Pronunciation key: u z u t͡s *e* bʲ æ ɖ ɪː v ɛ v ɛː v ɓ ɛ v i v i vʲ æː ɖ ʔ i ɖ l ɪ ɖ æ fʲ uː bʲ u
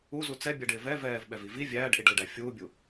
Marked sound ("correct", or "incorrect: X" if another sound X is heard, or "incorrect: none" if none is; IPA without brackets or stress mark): incorrect: ɛ